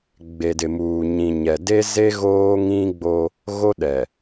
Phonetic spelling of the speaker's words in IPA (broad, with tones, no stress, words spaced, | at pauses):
ɡ͡be˨dɪ˨muː˨ ɲĩ˨ɲɛ˨ de˦ze˦ ɣoː˦ŋĩ˦ɡ͡bo˦ | ɣo˦ɗɛ˨